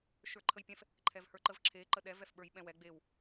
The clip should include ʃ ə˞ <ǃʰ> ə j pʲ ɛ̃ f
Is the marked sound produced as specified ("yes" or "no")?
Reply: yes